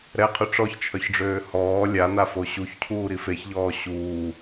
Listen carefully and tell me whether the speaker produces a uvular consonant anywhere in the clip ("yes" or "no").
yes